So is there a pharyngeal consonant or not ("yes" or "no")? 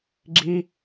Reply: no